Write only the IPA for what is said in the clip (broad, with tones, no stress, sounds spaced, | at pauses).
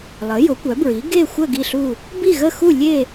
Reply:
lˠ ə˩˥ j ʊ˩˥ kʷ œ˩˥ b ɹ i˩˥ ɡ e˥˨ xʷ ə˥˨ ɡ i˥˨ ɬ u˥˨ | b i˥˨ ɣ ə˥˨ x u˥˨ lʲ e˥˨